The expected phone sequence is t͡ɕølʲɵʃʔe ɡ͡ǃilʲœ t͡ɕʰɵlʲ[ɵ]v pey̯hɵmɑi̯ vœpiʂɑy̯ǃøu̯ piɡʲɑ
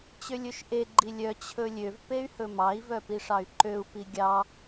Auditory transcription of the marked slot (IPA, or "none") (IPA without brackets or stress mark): ø